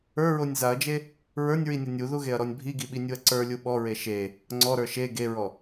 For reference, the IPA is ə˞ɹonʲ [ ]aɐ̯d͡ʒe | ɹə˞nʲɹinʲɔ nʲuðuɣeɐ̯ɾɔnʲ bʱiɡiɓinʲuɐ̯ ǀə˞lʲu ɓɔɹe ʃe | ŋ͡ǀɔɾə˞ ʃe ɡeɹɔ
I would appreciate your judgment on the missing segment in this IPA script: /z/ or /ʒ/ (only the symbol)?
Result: z